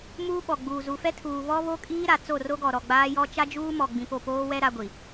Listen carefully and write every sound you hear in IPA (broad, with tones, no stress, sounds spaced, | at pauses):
m uː˦ ɓ ɔ˨ ɡ͡b uː˨ z u˨ f ɛ˦ tʰ uː˨ β ɔ˦ β o˦ kʼ iː˦ ɾ a˨ t͡s o˦˨ r o˦ ɡ ɔ˨ ɾ ɔ˨ ɡ͡b aː˦ j ɔ˦ t͡ʃ a˦ d͡ʒ uː˦ m ɔ˨ ɡ͡b ĩ˨ p o˦˨ p oː˦ w ɛ˦ ɾ a˦ ɡʷ i˨